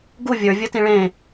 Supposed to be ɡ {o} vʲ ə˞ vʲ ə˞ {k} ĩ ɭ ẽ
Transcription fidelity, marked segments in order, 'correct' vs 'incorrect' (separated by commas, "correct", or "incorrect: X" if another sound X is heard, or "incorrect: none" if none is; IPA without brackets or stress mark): incorrect: u, incorrect: t